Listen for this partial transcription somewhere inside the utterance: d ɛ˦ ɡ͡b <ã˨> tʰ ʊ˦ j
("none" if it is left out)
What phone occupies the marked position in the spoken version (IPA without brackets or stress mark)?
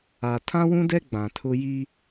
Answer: ã˨